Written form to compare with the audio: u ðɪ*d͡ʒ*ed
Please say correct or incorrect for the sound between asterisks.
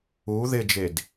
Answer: correct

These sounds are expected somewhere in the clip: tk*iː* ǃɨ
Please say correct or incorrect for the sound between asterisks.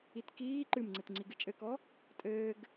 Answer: correct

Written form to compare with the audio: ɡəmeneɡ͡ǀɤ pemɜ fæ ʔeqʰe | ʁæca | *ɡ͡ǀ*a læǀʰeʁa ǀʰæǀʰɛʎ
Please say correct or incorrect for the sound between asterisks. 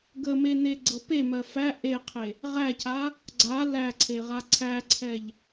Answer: correct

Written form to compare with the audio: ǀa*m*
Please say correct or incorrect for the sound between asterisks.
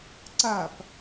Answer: incorrect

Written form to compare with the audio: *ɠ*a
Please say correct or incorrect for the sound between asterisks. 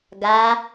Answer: incorrect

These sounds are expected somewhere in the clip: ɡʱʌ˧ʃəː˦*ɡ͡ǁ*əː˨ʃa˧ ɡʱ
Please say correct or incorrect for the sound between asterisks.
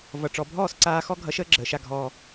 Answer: correct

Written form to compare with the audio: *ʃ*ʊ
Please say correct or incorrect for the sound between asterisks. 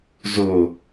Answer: incorrect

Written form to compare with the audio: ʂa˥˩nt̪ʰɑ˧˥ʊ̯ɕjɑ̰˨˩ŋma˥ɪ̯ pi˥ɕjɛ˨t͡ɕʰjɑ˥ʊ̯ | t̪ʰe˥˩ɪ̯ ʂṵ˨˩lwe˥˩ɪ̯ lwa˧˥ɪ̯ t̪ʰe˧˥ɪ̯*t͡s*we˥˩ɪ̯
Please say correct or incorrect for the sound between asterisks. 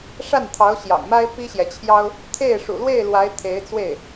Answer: correct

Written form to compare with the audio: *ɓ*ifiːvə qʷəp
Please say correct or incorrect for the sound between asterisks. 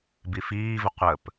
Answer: incorrect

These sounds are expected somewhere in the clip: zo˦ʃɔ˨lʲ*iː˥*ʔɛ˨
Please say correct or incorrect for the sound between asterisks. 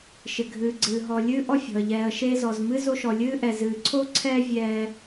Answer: incorrect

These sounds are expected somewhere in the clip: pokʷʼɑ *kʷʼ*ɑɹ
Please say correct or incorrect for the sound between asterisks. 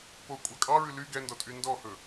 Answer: incorrect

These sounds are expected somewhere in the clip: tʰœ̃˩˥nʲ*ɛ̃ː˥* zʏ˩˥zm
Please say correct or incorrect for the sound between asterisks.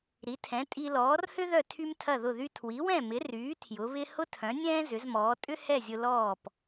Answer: correct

